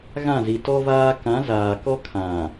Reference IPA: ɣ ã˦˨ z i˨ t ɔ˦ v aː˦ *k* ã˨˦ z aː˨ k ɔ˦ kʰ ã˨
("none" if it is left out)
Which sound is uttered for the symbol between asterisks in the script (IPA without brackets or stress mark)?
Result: k